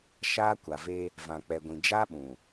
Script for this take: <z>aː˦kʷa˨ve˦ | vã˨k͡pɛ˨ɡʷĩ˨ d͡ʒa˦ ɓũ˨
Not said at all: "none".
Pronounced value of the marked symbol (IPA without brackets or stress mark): ʃ